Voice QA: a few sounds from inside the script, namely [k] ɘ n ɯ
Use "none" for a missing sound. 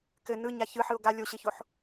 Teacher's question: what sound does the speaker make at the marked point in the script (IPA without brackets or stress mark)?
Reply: k